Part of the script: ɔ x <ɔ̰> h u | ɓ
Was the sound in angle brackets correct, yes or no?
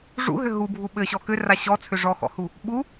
yes